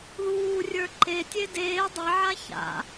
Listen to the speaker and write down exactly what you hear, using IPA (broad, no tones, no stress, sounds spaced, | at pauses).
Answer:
ð uː rʲ ə˞ ǃ e tʲ e d eː dˤ e ʕ a ç a̰